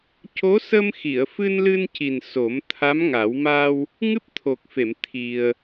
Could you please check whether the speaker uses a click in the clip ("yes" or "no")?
no